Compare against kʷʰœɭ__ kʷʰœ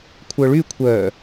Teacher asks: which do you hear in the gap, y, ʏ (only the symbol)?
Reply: y